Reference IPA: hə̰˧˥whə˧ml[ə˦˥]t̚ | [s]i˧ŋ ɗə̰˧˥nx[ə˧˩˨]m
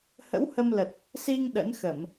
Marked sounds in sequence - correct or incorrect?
incorrect: ə˨˩, correct, correct

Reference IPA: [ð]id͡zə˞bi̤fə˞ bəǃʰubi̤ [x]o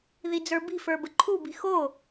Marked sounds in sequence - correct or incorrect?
correct, correct

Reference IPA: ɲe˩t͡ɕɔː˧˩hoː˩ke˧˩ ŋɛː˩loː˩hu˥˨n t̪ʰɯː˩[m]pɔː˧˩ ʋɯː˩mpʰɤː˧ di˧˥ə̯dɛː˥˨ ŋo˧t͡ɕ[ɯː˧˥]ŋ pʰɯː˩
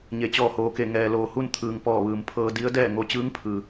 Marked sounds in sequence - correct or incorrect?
incorrect: ŋ, correct

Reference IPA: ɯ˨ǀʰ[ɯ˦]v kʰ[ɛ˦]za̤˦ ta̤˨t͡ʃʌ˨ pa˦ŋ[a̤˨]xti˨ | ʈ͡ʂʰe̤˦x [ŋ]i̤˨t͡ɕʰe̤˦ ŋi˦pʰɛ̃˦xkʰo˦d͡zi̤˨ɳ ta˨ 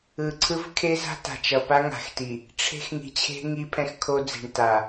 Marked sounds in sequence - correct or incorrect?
correct, incorrect: e˦, correct, correct

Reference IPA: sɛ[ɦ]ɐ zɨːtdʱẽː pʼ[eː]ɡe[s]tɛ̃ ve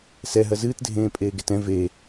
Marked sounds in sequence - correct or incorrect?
correct, correct, incorrect: none

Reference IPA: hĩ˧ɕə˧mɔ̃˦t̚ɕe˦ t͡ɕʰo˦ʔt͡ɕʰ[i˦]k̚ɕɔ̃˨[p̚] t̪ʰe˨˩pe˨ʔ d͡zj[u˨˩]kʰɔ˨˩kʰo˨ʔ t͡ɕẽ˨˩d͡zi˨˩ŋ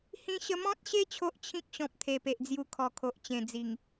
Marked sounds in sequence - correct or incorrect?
incorrect: ĩ˦, correct, incorrect: u˧

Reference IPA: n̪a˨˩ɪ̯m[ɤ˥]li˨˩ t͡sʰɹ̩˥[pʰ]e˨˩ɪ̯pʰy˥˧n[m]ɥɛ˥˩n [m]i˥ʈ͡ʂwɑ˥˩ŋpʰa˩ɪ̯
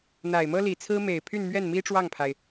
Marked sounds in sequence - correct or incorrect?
correct, incorrect: m, correct, correct

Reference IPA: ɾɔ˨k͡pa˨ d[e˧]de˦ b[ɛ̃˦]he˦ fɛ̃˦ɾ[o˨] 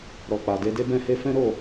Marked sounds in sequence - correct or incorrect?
correct, correct, incorrect: o˦˨

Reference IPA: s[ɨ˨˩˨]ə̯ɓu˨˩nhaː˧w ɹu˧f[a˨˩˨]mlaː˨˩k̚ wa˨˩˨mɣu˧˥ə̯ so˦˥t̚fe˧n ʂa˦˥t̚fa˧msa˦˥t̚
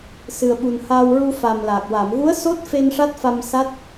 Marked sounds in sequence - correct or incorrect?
incorrect: ɨ˨˩, incorrect: a˨˩

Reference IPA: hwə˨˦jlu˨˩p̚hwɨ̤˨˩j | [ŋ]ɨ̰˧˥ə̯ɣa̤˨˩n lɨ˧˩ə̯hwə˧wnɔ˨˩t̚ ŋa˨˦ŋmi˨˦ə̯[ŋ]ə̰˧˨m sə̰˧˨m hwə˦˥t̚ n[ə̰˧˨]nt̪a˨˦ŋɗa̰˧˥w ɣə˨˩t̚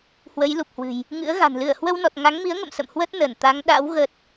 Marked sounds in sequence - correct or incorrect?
correct, correct, incorrect: ə˧˩

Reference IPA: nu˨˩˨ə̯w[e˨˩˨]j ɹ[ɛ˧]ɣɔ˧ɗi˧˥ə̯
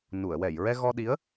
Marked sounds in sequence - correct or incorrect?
incorrect: ɛ˨˩˨, correct

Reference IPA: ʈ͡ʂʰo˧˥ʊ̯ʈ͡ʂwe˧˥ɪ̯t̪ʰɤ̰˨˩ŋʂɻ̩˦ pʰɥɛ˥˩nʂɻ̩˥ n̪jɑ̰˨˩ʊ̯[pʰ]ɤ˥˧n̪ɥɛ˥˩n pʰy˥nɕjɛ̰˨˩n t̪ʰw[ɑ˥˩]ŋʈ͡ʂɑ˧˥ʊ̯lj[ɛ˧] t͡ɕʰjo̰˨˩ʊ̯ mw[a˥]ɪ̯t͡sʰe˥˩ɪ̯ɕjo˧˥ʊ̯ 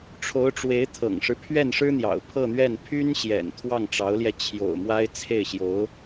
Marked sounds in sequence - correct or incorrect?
correct, correct, correct, correct

